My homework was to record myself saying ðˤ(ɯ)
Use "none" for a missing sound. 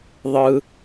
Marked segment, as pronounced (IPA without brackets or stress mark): ɯ